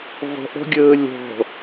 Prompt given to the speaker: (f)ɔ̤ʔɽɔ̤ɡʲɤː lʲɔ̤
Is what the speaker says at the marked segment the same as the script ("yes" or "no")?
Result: no